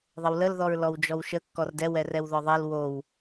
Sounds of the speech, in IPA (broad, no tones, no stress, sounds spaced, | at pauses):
ðˤ ə w l ə l ð ɔ ɹ l ɔ w d͡ʒ ɔ w ʃ ə kː ɔ r d ɛ w ɛ r ɛ w ð ɔ ðˤ ɛ l w o w